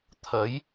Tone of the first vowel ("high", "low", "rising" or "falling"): rising